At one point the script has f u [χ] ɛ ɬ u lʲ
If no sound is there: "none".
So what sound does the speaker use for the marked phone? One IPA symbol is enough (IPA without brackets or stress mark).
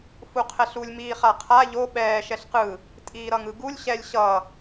qʰ